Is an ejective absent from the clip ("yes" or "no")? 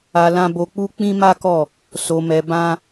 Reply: yes